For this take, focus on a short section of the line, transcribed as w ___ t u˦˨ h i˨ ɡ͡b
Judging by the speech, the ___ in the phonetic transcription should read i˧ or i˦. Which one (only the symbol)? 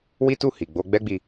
i˦